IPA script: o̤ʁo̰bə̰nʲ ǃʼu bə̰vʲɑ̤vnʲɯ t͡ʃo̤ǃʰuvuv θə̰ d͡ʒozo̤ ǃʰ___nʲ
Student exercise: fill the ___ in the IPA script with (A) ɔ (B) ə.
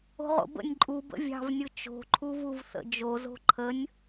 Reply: B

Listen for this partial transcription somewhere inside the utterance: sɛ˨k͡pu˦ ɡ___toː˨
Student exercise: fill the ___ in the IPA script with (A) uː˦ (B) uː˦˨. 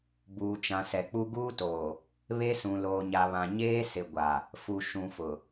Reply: A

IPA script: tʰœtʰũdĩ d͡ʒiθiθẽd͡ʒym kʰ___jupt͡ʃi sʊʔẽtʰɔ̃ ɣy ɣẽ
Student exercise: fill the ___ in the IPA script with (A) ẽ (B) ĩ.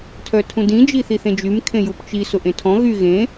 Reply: A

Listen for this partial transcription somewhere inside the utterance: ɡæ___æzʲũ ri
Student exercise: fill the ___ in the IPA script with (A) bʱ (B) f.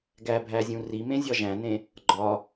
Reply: A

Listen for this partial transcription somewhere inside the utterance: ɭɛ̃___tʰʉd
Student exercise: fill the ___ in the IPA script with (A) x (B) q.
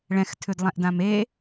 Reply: A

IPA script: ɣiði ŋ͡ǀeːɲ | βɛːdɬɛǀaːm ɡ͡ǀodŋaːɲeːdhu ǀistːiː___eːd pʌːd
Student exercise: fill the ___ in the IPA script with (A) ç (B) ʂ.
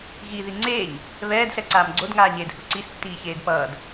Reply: A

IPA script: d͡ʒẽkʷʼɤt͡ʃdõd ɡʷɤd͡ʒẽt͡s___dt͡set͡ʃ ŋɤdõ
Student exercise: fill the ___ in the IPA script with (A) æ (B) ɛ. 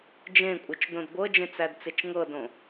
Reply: A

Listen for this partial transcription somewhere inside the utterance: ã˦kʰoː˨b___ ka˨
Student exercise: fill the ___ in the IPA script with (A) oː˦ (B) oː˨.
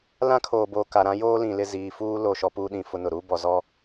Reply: B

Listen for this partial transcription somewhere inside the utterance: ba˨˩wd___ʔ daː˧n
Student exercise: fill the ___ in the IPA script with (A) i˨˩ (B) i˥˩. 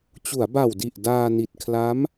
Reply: A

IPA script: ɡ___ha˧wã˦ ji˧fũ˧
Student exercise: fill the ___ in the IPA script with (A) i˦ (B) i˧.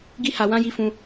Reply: A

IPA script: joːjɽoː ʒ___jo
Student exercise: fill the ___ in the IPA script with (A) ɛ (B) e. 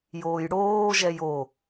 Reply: A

